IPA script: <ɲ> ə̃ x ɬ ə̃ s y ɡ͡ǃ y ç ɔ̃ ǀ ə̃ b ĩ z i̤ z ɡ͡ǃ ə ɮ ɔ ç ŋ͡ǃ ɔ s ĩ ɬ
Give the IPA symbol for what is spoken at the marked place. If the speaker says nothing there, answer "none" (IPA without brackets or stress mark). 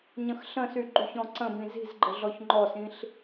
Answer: ɲ